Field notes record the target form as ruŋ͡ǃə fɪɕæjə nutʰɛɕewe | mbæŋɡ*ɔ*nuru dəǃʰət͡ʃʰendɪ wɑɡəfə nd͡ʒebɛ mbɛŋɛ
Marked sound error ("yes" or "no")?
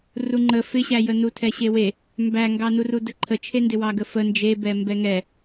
yes